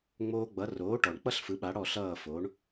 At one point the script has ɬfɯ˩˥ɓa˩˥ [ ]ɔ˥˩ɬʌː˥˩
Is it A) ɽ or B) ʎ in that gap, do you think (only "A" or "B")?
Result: A